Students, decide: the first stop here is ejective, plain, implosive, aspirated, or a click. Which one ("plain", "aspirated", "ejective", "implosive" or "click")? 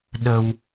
implosive